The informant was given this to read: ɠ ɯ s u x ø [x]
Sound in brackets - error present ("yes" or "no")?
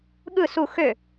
yes